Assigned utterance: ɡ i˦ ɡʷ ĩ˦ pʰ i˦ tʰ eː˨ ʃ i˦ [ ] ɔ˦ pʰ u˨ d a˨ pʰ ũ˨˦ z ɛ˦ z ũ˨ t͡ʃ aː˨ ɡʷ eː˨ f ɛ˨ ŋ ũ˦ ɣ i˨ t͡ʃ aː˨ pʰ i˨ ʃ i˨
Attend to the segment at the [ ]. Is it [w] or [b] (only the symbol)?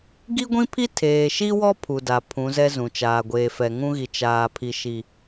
w